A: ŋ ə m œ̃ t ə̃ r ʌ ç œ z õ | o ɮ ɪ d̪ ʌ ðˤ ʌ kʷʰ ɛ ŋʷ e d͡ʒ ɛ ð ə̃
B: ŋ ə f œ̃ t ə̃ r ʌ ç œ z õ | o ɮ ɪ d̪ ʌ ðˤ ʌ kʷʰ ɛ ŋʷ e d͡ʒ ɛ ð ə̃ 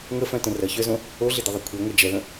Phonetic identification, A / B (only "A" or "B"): B